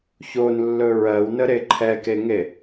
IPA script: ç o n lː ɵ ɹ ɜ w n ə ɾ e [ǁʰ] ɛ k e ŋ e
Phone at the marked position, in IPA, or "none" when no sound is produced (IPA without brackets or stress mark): ǃʰ